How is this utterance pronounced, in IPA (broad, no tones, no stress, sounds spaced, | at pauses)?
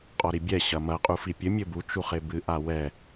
qʼ ɔ ɾ i bʲ ɛ ɕ ɐ m ɐ qʼ u f i pʲ ɘ mʲ ɘ b u t͡ʃ u χ e b ɨ ʔ a w ɛ